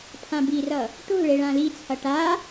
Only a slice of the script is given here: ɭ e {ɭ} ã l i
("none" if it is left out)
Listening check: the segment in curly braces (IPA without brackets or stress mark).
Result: ɭ